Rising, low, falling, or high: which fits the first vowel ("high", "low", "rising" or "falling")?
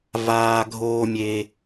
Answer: high